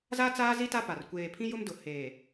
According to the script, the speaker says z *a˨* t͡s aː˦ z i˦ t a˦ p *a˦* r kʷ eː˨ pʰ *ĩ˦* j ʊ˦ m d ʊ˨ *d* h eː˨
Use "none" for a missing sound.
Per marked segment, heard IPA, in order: a˦, a˨, ĩ˦, none

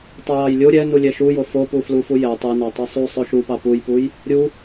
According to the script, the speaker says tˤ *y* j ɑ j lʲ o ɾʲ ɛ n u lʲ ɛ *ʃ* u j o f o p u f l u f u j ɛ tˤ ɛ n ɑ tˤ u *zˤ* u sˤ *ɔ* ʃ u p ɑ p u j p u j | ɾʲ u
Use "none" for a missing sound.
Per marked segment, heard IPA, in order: u, ʃ, sˤ, o

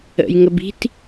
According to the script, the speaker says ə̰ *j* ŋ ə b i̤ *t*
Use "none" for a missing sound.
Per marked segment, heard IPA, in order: j, t

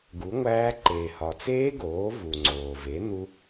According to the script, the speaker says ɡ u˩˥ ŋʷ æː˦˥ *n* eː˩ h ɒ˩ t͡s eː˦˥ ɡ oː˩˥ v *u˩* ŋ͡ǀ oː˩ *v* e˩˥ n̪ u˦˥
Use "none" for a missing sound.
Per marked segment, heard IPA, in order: ǃ, u˩, v

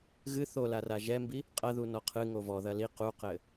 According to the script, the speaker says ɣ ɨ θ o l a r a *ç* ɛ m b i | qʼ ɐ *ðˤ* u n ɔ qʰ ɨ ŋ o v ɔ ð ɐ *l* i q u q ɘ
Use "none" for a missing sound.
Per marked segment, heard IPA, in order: ʒ, ð, l

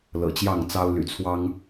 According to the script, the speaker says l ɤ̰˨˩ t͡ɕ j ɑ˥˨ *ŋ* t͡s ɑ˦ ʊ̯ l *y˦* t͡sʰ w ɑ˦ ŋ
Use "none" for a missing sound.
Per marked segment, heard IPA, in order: ŋ, y̰˨˩

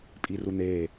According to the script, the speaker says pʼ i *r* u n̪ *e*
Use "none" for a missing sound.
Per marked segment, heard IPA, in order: r, e

